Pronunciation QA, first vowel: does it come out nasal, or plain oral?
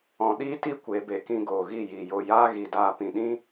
nasal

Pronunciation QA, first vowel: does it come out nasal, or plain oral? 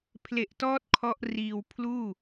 oral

